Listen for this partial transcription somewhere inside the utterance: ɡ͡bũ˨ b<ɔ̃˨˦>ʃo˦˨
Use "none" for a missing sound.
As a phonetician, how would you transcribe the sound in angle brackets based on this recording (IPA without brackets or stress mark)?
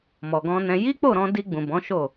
ɔ̃˨˦